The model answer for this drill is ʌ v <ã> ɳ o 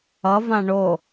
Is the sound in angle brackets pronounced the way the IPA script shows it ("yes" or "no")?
yes